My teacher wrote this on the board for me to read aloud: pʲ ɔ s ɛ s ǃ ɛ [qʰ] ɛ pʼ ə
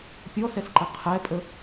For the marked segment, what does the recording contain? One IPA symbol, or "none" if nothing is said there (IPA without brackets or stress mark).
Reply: qʰ